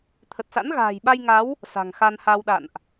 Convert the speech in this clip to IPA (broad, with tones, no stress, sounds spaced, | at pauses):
t̪ʰ ə˨˩ t̚ s a̰˧˥ n ɣ a̤ː˨˩ j ɓ a˧ j ŋ a˨˦ w | s a̤˨˩ ŋ x a˧ n h a˧ w ɗ a̰˧˨ n ʔ